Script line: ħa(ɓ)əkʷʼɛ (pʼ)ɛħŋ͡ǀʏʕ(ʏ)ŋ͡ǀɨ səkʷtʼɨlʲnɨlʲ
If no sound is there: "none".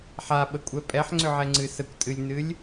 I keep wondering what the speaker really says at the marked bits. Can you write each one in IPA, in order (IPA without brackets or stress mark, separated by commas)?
ɓ, pʼ, ɛ